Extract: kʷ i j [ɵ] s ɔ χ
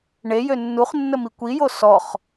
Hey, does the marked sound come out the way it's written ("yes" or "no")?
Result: no